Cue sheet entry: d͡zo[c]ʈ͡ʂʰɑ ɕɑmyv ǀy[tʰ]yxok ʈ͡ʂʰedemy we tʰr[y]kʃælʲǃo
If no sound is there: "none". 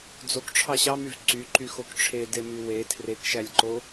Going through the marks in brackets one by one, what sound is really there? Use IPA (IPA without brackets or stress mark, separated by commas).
k, ǃ, e